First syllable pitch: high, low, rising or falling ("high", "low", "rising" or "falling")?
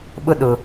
high